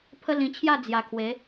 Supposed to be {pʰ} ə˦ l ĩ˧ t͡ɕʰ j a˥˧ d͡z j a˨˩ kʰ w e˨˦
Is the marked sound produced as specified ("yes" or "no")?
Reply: yes